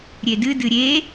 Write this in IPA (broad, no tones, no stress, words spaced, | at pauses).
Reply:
ɾʲedɨdɨ ɾʲe